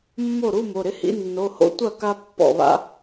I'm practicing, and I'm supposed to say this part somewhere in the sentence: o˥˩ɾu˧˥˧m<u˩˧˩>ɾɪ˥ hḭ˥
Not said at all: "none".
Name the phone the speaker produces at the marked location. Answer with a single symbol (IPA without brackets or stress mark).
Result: o˩˧˩